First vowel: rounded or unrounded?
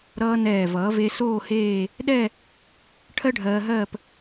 unrounded